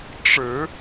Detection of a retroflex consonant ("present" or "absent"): present